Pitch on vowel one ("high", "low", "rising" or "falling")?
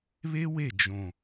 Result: high